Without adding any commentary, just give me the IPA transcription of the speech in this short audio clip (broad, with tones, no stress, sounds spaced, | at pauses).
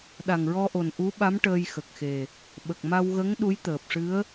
ɗ a˨˩ ŋ ɹ ɔ˧ ʔ o˨˩ n ʔ u˧˥ ɓ a˧˥ m ʈ əː˧ j x ə˨˩ k̚ x e˨˩ | ɓ ə˨˩ k̚ m a˧ w ɣ ə˧˥ ŋ ɗ u˧˥ j t̪ əː˨˩ p̚ ʂ ɨ˧˥ ə̯